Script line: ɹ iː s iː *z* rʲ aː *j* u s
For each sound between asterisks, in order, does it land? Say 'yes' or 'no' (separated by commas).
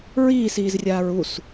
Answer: yes, no